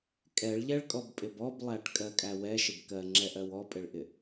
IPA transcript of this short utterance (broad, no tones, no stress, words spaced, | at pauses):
kʼɛɭʎɛɭkʼɔbpʼɪb ɔblˠæʈ kʼɜkʼæwɛ ʃɪbkɜŋ͡ǁɛʔɜw ɔpʼɪɭʔɪ